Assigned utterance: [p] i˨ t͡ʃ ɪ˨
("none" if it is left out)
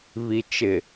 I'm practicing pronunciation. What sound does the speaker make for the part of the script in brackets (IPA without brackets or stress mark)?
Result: β